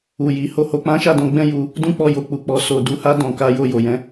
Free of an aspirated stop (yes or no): yes